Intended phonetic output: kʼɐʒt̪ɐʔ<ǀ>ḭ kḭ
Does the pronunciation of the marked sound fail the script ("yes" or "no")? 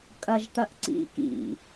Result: no